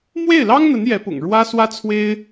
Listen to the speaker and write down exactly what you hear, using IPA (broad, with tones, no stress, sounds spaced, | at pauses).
m w e˥˩ ɪ̯ l ɑ˥ ŋ n̪ ə˧˥ n j ɛ˧˥ p ʊ̰˨˩ ŋ ɻ w ä˥ s w ä˥ t͡sʰ w e˥ ɪ̯